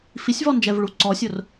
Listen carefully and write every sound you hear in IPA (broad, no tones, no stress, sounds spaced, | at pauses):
f i sʲ v ɔ n d͡ʒ ɛ v ɭ u ǀ ɔ sʲ ʊ r